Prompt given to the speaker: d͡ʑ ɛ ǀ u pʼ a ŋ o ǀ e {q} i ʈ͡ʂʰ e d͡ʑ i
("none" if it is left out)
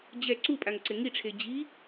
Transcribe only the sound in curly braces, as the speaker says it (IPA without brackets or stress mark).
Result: ŋ